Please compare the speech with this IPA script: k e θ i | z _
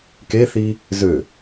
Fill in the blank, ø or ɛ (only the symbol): ø